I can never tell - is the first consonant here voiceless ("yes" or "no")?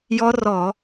no